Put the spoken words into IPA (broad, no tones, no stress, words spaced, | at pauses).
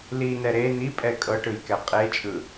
linɛ ɾe n̪ipʼɛ kʼɤʈɯjkɛ qʼet͡ʃʼɯ